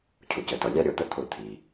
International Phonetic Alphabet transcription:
cʰʊ˩cə˩tʌ˩ lʲɑ˦ɾʲɔ˩˧t̪ə˦ t̪ʰʊ˧˩˧t̪ʰi˩

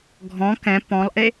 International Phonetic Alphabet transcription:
ɡʱɔ̃ kɛ̃ pɔ̃lˠʔe

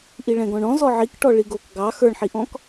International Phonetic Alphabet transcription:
ʔiɭɛ̃ɡɔ̃ɳɔ̃ zɔʕikʈɔ ɭiɡok ɡɑ xə˞ɳħiʔɔ̃k

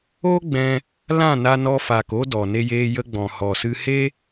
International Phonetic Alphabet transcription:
o˦ɡ͡bɛ̃˧ | lã˦˨na˧nɔ˧faː˨k o˦dɔ˨ ne˧jeː˧jə˧ɡ͡bɔ̃˨ hɔ˨sɨ˧he˦

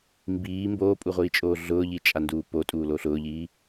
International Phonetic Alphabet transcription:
mbiː mboːpʼuʁʷiːt͡ʃʼoː ɮʊːʎit͡ʃʼanduː potʼuːlo ɬʊːʎiː

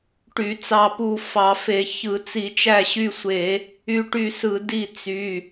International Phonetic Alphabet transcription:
ʈy˧˩˧t͡sɑ˦˨pu˦˨ fɑ˧˩˧fe˧˩˧ çɯ˧˩˧ t͡si˧˩˧t͡ʃæ˦˨ɕy˦˨sʷe˧˩˧ | y˦˨ʈy˦˨sɯ˧˩˧ di˦˨t͡sy˩˧˩

